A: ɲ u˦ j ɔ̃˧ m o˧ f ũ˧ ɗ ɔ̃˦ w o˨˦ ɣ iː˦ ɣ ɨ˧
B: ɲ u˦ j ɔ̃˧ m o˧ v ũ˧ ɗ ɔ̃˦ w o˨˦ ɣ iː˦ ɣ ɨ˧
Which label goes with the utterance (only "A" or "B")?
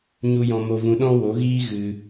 B